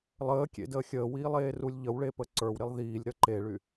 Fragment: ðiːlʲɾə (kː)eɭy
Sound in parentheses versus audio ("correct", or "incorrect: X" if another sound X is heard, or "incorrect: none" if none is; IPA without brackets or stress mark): incorrect: ǃ